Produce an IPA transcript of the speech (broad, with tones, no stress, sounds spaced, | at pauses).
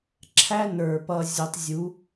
ǁʰ æ˦ n ə˞˨ p ʌ˧ zʲ ʊ˧ tˤ zʲ u˨˦